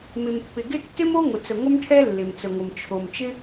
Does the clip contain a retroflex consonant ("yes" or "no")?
yes